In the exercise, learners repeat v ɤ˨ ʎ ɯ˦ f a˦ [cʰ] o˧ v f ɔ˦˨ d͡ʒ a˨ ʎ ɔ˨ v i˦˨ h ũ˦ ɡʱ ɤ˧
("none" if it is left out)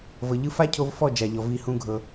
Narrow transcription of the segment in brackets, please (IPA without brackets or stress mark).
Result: cʰ